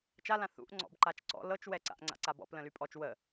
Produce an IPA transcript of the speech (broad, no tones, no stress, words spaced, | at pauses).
t͡ʃalã θṵʔ ŋ͡ǀɔ̰bǃat͡ʃǀɔ̰ lɤt͡ʃwɛǀa̰ʔ ŋ͡ǀa̰ǀabɔ̰p lə̃lypʼɔt͡ʃ wə